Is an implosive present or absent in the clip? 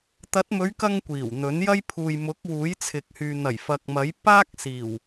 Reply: absent